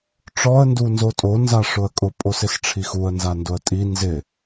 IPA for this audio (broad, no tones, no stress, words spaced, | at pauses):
ʈ͡ʂɔə̯ ndunzotʼo nzaʂʊə̯kʼʊ pʼosɪsʈ͡ʂʰixuə̯ nzandʊə̯tʼi nzɪ